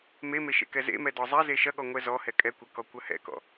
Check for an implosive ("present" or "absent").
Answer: present